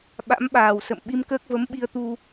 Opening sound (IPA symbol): ɓ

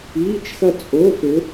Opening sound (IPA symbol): iː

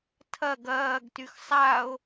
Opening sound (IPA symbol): tʰ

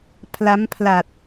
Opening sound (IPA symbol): pʰ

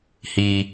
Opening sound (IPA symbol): h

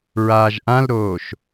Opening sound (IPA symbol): ɹ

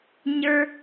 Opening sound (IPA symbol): ɲ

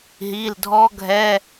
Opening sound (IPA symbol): ɦ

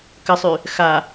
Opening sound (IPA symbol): k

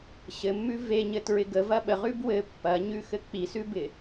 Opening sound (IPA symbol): ɕ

